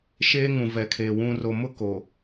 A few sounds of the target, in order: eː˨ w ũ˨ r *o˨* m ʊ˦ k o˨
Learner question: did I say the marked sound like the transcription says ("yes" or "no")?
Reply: yes